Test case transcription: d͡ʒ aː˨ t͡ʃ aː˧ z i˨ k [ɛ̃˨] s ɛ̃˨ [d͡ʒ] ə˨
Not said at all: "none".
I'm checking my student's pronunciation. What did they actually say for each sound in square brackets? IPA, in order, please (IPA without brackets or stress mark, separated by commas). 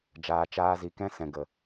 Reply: ɛ̃˦, ɡ